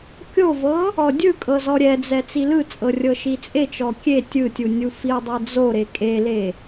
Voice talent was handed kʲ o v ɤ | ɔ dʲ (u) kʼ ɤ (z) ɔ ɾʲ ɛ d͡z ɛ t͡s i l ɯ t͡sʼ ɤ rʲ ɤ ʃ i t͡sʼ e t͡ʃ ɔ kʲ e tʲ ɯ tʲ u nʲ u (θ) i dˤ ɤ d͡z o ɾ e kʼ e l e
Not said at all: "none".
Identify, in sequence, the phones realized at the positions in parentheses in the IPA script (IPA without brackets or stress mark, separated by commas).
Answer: ɯ, z, f